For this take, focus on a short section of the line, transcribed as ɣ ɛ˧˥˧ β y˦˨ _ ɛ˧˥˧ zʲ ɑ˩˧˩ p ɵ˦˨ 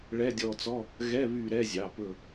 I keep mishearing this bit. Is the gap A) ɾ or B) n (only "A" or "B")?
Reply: A